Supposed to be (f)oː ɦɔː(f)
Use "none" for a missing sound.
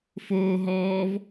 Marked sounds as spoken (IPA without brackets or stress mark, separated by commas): f, v